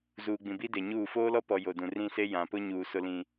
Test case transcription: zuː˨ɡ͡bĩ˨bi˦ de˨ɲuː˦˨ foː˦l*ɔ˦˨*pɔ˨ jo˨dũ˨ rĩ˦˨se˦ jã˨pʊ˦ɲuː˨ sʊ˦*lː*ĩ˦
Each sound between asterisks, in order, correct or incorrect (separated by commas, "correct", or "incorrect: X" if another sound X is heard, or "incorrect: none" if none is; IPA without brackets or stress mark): incorrect: ɔ˦, incorrect: l